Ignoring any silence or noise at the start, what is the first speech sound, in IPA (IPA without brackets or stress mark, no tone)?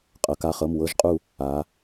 qʼ